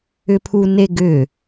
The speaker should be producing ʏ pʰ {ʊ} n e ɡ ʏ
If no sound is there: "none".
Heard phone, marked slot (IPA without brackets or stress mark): u